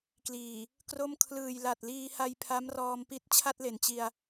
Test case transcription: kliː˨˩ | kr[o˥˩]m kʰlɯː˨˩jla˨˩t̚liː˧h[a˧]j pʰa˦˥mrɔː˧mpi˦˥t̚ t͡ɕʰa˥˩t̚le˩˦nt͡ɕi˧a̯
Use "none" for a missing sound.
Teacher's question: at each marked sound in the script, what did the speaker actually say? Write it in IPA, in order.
o˥˩, a˧

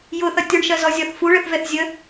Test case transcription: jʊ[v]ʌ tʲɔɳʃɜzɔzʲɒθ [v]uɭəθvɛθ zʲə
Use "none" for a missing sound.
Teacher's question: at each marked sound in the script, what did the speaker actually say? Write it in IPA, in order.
θ, f

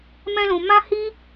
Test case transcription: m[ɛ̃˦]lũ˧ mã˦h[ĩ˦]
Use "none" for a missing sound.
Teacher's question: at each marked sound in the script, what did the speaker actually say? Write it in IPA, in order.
ɛ̃˦, i˦

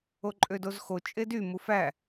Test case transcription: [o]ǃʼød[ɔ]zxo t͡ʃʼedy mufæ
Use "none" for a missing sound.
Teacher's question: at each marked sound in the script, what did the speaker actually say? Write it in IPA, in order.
o, o

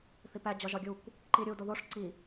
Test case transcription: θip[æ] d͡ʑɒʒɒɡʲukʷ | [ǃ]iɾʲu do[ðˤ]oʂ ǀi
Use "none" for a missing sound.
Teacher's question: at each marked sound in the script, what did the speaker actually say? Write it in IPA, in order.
æ, ǃ, ð

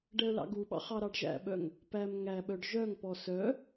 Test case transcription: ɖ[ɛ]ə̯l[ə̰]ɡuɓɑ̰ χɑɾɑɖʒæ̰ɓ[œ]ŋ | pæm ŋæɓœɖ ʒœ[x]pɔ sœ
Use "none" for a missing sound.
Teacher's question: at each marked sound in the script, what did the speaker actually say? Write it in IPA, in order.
ɛ, ɑ̰, œ, ŋ

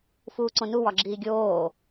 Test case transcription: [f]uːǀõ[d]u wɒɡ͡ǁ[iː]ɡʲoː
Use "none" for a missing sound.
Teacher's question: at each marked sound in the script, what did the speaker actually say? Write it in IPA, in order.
f, n, iː

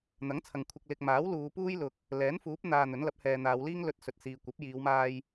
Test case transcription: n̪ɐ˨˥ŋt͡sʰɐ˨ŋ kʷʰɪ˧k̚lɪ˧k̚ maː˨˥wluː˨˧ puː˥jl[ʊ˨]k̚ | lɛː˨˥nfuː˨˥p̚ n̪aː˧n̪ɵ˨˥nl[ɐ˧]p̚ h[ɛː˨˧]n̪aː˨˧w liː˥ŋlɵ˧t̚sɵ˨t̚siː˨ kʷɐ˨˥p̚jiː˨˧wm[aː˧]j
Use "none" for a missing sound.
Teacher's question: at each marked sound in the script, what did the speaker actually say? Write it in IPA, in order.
ʊ˨, ɐ˨˥, ɛː˨, aː˧

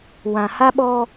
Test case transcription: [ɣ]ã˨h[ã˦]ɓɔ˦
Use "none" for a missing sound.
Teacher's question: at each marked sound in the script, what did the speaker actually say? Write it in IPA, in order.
w, a˦

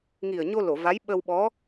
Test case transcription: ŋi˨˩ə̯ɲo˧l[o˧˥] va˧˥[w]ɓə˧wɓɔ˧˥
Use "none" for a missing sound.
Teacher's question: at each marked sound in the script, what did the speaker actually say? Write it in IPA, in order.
o˨˩˨, j

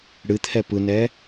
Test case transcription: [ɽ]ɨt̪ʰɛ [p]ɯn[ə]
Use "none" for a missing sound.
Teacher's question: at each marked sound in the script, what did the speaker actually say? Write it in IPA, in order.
ɽ, p, ɛ

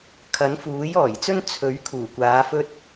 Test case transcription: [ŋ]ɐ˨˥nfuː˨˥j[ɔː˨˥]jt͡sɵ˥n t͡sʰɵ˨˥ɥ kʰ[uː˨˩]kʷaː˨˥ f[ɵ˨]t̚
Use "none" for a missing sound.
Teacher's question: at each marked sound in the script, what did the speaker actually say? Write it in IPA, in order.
kʰ, ɔː˨˩, uː˨˩, ɵ˧

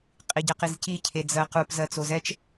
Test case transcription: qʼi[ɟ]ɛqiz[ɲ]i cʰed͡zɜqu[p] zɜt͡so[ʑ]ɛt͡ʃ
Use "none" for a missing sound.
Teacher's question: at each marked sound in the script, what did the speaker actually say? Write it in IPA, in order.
ɟ, c, p, z

